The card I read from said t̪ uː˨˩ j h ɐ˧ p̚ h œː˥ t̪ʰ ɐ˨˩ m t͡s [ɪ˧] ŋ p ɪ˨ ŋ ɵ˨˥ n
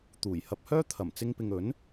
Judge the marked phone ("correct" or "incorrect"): correct